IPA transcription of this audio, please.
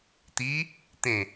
t̪ i | t̪ ẽ

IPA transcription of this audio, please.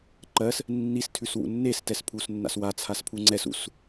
ǃ ɜ s | nː i s tʰ ʉ s w ṵ nː e s t ɛ s pʰ u s nː a̰ s w a t͡sʰ a s pʰ u ŋ͡ǀ ɛ s ṵ s

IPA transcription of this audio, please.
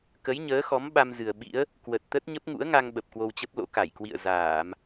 k ə˨˦ j ɲ əː˨˦ x ɔ˨˦ m ɓ a˧ m z ɨ˨˩ ə̯ ɓ ḭ˧˥ ə̯ | k w ə˨˩ t̚ t̪ ə˦˥ t̚ ɲ ə˦˥ p̚ ŋ ṵ˧˥ ə̯ ŋ a˧ ŋ ɓ ə˨˩ p̚ k w o˧ w t͡ɕ ə˦˥ p̚ l o̰˧˥ k a˧˩ j k w ḭ˧˨ ə̯ z aː˧˩˨ m

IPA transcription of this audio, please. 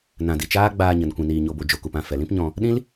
n ã˨ d i˨ t͡ʃ aː˦ ɡ͡b aː˧ ɲ ə˨ n kʷ ĩ˨ n iː˨ ɲ o˨ b o˨ d͡ʒ o˨ k u˨ p ã˦˨ f ɛ˨ l ĩ˦ p ɲ ɔ̃˧ | ɗ ĩ˦ l

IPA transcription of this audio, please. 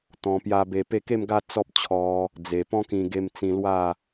t̪ ɔ̃˧ p j a˦ b e˧ p e˥˧ k e˥˧ m ɡ a˥˧ t͡s ɔ˦ p̚ t͡ɕʰ ɔ˧ | d͡z e˨˩ p ɔ̃˦ k ĩ˧ ɡ e˧ m t͡s ĩ˧ l w a˥˧

